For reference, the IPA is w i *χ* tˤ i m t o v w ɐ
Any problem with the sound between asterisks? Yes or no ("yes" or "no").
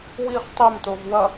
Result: no